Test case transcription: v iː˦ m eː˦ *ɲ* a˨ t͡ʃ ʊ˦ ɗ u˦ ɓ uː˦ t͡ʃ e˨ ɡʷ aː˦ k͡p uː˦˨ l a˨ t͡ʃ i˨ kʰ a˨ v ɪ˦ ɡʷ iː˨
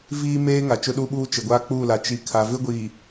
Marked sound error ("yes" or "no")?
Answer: yes